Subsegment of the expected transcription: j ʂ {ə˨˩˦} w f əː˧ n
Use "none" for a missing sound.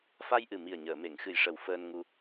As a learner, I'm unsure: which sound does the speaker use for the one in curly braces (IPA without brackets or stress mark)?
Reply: ə˨˩